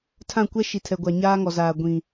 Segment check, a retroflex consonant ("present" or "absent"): absent